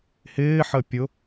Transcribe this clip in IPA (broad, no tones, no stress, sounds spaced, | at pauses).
h ɪː ħ ə pʲ ʊ